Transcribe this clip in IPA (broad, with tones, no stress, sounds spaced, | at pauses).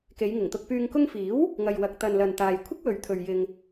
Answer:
k e˨˧ j ŋ ɪ˨˩ ŋ t̪ ʊ˧ k̚ p yː˧ ŋ k ʊ˧ ŋ f iː˨˥ w | ŋ ɐ˨ j w ɐ˨ k̚ t̪ ɐ˨ n l ɐ˨ n t̪ aː˨ j kʷʰ ɪ˥ k̚ w ɵ˨ ɥ t̪ʰ ɵ˨ ɥ j ɪ˨ ŋ